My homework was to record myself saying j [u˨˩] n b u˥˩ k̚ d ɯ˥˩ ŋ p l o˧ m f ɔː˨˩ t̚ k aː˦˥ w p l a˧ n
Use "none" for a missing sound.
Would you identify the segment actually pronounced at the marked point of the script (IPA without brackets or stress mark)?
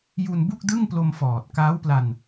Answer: u˧